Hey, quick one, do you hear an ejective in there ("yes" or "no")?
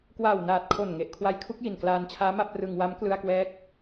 no